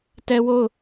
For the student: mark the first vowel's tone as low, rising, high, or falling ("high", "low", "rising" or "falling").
high